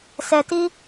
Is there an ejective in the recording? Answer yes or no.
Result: no